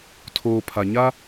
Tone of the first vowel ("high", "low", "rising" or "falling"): low